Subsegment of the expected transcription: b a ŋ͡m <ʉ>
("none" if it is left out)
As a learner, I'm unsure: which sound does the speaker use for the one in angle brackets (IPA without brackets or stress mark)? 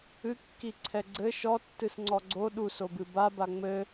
ɘ